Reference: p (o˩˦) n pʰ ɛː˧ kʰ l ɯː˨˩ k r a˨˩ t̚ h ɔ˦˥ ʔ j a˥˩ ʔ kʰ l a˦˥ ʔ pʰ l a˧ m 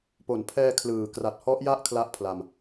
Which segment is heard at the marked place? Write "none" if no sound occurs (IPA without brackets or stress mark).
o˩˦